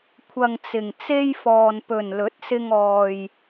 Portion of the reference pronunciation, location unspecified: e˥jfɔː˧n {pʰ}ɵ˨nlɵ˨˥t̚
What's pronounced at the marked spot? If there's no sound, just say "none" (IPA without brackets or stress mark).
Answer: p